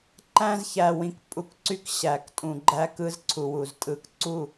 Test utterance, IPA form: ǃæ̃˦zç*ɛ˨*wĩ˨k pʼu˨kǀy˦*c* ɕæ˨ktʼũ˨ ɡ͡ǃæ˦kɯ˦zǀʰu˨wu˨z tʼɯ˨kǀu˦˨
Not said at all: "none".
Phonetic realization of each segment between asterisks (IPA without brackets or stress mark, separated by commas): æ˨, k